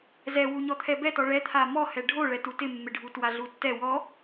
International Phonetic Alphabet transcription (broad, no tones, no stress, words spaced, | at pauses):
zɛwu ɲɔt̪ʰɛbɛtɔ ɭɛt̪ʰa mɔhɛ ɖʱoɭɛtu tɪmːɪɖʱu twaɮutːɛ wɔ